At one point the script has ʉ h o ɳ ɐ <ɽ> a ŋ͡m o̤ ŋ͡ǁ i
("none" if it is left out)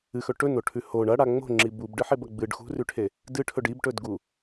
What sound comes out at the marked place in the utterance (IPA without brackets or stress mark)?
ɽ